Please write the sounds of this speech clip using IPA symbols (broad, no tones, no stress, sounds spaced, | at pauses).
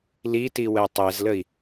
l i t i w ɛ tˤ ɛ z l ə i̯